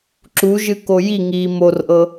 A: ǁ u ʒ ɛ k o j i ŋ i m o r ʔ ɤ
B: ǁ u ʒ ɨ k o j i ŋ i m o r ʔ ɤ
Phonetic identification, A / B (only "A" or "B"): B